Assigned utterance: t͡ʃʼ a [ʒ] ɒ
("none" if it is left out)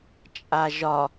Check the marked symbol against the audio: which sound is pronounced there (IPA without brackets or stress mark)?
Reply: ʒ